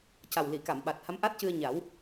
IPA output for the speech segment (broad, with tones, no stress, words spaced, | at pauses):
ca˨˩wli˨˩˨ka˨˩˨m ɓa˨˩t̚ha˧˥mʔa˦˥t̚cɨ˧ə̯ ɲa˨˩˦w